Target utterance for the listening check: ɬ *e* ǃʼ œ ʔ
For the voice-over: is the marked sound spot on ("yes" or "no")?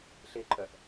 yes